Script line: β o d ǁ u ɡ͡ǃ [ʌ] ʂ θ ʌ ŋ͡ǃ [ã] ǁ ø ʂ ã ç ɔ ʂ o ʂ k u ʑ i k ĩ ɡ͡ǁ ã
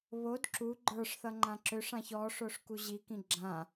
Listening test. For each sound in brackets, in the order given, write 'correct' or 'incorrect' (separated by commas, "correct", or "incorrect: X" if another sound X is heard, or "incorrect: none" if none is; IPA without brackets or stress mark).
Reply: incorrect: ə˞, correct